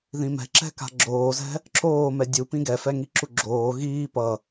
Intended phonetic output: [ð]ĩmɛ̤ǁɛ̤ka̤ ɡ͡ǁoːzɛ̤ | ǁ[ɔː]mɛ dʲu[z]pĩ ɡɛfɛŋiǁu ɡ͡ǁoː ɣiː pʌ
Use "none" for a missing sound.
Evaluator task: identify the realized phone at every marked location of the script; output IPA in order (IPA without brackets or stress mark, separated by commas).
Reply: ð, oː, none